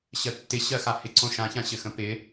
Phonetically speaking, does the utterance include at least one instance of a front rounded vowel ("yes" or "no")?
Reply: no